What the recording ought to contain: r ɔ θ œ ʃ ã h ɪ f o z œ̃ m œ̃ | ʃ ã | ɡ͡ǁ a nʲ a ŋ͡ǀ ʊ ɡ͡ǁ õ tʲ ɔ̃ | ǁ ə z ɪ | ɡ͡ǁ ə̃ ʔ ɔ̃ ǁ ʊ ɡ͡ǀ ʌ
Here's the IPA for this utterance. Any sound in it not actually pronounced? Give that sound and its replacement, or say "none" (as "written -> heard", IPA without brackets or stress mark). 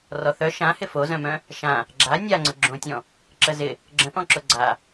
ʌ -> a